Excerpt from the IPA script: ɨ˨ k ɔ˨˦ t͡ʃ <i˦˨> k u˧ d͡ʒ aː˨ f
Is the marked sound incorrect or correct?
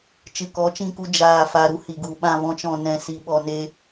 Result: incorrect